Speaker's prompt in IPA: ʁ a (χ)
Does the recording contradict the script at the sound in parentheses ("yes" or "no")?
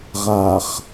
no